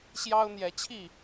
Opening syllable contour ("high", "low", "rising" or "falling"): high